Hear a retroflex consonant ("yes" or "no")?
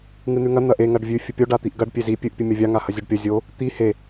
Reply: yes